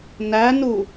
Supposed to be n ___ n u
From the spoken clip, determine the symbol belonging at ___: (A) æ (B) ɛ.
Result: A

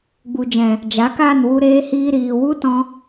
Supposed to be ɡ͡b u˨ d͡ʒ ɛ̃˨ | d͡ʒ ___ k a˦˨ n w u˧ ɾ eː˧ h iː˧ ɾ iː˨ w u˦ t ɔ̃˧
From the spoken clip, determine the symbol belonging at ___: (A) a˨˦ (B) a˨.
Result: A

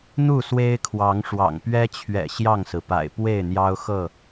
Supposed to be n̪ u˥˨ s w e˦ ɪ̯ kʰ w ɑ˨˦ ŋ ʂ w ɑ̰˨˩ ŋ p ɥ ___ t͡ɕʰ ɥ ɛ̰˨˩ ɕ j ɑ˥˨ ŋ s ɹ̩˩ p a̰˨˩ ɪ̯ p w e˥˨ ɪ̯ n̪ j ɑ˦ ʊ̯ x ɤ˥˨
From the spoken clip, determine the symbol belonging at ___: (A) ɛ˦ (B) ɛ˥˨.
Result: A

